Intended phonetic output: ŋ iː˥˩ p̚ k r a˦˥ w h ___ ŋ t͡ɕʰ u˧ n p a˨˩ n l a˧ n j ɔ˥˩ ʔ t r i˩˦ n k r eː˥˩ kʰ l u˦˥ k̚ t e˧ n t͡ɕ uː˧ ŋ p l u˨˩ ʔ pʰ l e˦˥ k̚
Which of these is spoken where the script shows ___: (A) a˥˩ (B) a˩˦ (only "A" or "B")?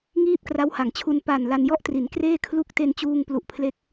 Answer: B